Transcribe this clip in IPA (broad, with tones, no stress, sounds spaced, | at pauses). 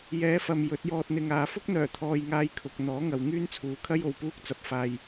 j ɛː˨˧ f ɐ˨ m j ɵ˨˥ t̚ j ɔː˧ t̚ n̪ ɪ˧ ŋ aː˨˧ f ʊ˥ k̚ n̪ œː˨˩ t̪ʰ ɔː˨ j ŋ aː˨˧ j kʰ ʊ˨ k̚ n̪ ɔː˨˥ ŋ ɐ˨ w ŋ yː˥ n t͡sʰ uː˨˧ kʰ ɐ˥ j o˨ w p uː˥ k̚ t͡s ɐ˧ p̚ f aː˧ j